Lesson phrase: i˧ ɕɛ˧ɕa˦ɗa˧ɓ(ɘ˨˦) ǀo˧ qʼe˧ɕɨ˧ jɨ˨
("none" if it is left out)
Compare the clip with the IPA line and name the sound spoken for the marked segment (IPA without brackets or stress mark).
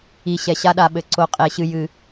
ɘ˨˦